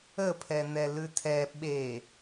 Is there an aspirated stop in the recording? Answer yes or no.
yes